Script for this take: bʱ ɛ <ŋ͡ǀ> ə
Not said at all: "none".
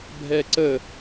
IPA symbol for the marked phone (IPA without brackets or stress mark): ǀ